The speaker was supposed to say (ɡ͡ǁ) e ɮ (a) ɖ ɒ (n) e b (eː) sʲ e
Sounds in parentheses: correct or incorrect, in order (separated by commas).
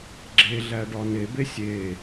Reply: correct, incorrect, correct, incorrect